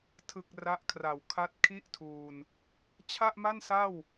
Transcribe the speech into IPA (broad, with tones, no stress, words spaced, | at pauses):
tʰɯ˨˩k̚ ra˦˥ʔkʰra˨˩w kʰa˦˥t̚kʰi˥˩ʔtʰuː˧n | t͡ɕʰa˥˩ʔma˥˩nsa˥˩w